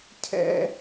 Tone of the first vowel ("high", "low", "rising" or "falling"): high